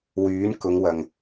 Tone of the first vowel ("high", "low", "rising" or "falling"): rising